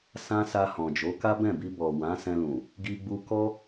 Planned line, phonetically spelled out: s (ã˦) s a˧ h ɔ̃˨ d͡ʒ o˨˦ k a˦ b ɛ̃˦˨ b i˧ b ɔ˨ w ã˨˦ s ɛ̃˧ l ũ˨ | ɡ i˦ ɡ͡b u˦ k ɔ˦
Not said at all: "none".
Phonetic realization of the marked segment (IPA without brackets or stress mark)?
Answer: ã˦